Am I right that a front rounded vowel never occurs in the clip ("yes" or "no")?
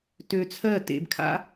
no